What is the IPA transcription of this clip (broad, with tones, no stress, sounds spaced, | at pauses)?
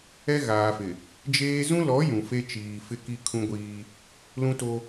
ɛ˦ ɣ aː˨ f ɪ˨ | d͡ʒ eː˦ z ũ˦ l ɔ˨˦ j ũ˨ f e˦ t͡ʃ iː˨ f ɪ˦ k i˦ kʰ ũ˦ ɡʷ iː˦ | l ũ˦ t o˦